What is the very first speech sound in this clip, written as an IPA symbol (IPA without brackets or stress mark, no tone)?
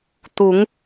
t̪